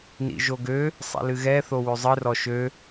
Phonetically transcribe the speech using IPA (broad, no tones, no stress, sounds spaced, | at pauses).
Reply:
n ḭ ʒ o ɡ ø | sˤ ḭ l ɨ ɣ ɛ θ o w ø zˤ ɨ r ɔ ʃ ø